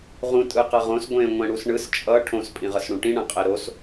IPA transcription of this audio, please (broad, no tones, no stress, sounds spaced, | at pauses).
ʁ ũ tʼ ɯ q ʌ ʁ õ s ɡʷ ẽ ŋʷ ɛ̃ ɽ u s ɳ ɯ s t͡ʃʼ ʌ ʈʰ õ s pʼ ĩ ʁ ʌ s ɽ ũ ʈ ĩ ɳ ã qʼ e ɾ o s